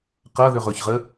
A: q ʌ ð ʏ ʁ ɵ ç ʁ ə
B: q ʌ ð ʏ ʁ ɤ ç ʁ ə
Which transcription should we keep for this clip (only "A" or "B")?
A